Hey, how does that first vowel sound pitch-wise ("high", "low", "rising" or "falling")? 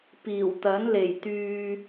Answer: low